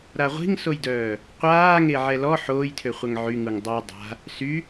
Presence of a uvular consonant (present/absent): present